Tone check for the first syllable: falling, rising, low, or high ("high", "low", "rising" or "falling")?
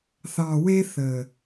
low